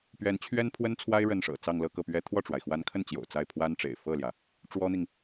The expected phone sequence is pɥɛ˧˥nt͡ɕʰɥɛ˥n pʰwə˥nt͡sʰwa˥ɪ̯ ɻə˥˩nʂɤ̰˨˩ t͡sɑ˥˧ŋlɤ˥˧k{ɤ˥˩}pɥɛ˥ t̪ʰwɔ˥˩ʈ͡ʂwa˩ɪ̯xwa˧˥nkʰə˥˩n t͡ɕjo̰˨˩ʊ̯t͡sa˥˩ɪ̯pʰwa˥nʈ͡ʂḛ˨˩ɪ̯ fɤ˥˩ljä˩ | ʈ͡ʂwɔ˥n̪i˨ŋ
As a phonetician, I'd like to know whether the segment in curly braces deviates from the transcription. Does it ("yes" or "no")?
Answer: no